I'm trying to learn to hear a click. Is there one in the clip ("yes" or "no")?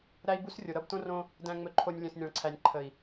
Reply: yes